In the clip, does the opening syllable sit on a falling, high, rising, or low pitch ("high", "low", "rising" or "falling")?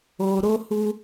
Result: low